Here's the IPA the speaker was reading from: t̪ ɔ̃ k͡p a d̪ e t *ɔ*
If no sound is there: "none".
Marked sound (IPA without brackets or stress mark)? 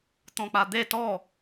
ɔ